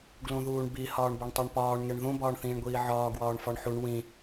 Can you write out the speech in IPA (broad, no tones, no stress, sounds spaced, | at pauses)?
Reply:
ɡ l ũ ð uː ɳ b i h ɒː ɳ b o ɳ tˤ o ɳ p ɒː ɳ ŋ e ɳ ð ũ b ɒː ɳ θ ĩː ɳ ɡʷ iː ʕ ɒː ɡ w ɒː ɳ f ɒ ɳ ħ u ɳ w ĩ